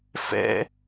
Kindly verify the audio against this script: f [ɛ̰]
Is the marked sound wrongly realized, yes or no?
no